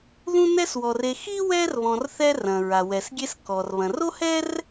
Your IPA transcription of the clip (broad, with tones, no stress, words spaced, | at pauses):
ðũ˦nɛ˦swɔ˩re˨ xi˥wɛ˦r βɔ̃˨rθɛ˦ rɐ̃˩ɹa˩ wɛ˩sɡʲe˦s kɔ˩r βɐ̃˩ro˥ hɛ˥r